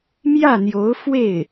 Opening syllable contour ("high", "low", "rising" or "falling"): falling